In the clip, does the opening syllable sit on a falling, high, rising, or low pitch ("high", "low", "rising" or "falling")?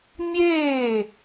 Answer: falling